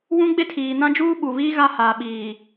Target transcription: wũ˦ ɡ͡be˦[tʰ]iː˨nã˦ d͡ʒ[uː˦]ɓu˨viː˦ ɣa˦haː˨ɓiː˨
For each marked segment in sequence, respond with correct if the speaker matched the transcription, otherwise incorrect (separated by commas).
correct, correct